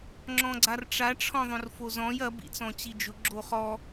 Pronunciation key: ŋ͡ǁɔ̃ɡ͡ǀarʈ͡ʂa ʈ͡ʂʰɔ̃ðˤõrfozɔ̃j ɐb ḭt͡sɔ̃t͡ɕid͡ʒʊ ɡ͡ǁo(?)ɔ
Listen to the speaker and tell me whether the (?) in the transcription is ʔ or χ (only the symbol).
χ